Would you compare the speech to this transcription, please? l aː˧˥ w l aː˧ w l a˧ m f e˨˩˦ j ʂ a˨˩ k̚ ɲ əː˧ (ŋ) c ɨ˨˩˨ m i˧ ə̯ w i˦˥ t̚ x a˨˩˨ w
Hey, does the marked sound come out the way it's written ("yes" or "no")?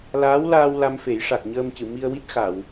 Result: no